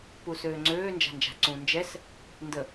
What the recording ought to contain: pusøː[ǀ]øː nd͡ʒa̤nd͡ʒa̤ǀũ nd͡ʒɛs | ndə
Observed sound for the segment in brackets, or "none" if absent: ŋ͡ǀ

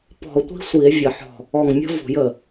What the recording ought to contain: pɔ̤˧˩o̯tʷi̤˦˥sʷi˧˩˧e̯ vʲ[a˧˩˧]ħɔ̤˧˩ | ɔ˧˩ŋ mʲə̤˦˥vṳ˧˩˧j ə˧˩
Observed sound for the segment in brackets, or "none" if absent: ə˧˩˧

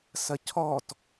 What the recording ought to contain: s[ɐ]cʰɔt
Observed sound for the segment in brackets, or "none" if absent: ɐ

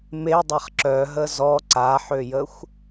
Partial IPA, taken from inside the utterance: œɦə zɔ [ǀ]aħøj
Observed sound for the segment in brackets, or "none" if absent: ǀ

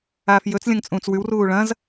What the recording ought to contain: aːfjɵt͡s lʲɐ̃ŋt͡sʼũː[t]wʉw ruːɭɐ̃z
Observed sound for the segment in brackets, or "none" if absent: t͡s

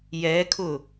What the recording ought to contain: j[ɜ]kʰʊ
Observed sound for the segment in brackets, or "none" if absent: ɛ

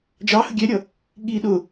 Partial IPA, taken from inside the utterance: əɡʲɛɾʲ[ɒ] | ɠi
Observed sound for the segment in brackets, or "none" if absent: ʌ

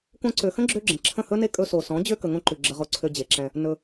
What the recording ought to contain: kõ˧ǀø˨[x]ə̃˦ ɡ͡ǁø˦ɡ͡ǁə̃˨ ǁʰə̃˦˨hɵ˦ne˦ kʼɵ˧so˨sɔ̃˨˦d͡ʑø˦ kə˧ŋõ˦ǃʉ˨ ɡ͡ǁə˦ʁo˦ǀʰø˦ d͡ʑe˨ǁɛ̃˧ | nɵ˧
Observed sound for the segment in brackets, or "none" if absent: x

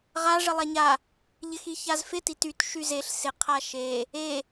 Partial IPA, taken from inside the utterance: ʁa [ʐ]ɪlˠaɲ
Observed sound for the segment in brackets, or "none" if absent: ʐ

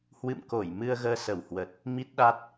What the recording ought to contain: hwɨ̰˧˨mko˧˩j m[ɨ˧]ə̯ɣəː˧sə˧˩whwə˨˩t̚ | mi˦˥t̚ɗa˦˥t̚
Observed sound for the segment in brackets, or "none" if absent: ɨ˧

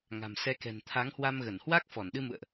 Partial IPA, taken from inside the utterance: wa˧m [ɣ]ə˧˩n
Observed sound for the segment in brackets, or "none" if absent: ɣ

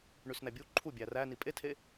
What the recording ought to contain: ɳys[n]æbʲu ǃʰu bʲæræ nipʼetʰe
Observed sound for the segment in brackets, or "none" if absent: n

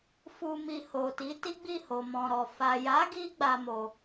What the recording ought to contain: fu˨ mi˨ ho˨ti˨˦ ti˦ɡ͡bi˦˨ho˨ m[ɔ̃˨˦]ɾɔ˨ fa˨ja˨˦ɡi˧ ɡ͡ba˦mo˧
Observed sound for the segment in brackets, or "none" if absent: ɔ̃˨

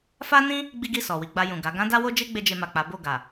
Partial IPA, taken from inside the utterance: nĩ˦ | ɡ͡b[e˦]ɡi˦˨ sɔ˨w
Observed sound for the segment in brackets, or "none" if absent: i˦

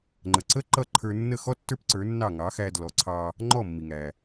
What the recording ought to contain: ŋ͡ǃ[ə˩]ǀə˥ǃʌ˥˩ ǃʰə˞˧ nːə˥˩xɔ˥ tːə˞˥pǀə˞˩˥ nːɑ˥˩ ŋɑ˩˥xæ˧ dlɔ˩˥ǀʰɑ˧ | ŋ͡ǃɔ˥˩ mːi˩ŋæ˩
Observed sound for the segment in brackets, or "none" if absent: ə˩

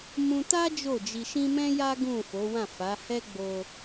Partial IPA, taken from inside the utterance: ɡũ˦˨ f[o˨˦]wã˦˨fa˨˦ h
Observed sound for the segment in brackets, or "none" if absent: o˨˦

